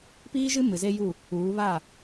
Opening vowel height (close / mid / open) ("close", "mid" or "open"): close